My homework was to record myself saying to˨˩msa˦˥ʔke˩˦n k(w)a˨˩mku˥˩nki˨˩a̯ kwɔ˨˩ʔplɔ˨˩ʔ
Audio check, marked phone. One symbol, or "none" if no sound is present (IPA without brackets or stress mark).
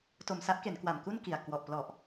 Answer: w